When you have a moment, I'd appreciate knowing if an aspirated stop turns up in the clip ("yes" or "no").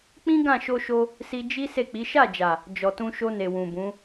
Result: no